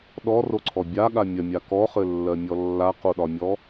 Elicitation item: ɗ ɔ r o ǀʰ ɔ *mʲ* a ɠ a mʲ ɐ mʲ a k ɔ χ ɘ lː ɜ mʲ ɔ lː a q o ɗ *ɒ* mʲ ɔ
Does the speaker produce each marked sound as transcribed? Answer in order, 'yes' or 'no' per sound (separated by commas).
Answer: no, yes